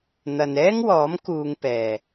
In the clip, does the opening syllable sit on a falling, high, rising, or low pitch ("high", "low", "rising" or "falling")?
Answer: low